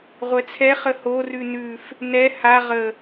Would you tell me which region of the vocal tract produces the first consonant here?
uvula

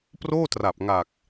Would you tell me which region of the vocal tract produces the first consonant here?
lips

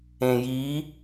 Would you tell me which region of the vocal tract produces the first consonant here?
palate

